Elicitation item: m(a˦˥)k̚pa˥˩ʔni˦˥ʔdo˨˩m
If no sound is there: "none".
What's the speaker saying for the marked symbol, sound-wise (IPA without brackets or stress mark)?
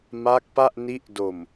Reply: a˦˥